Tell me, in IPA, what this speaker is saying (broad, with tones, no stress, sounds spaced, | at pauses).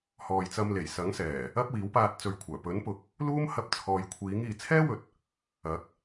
h ɔː˨ j t͡s ɐ˧ m l e˨˩ j s ɐ˨˥ ŋ s ɛː˨˩ | ɐ˥ p̚ w iː˨˥ w p aː˧ t̚ t͡s ɵ˨ ɥ kʷʰ œː˨˩ p ɵ˨˥ n p ʊ˨˥ k̚ | l uː˥ m h ɐ˧ p̚ t͡sʰ ɔː˨ j kʷʰ iː˨˥ ŋ iː˨ t͡sʰ ɛː˥ w ɵ˨˥ t̚ | ɐ˨˥ k̚